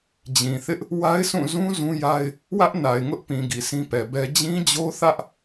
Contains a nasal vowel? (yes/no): yes